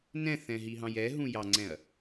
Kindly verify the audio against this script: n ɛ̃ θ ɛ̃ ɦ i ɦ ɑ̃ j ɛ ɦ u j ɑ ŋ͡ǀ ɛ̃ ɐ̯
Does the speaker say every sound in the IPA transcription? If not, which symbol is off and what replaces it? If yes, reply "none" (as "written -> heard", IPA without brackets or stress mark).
u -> ũ